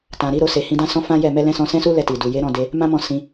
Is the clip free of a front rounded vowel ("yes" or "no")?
yes